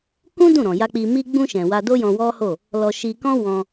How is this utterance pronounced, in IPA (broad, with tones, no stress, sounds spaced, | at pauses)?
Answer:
k ũ˦ d ũ˦˨ ɾ ɔ̃˨ j a˧ k͡p i˧ m i˧ ɡ͡b ũ˧ ʃ ɛ̃˨ w a˧ d o˦ j ɔ̃˧ w ɔ˦ h o˦˨ | l ɔ˧ ʃ i˧ k ɔ̃˦ w ɔ̃˧